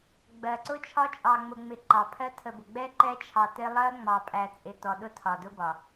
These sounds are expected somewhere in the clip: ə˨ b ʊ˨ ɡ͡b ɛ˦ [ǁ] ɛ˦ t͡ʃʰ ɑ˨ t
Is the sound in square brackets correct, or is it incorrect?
incorrect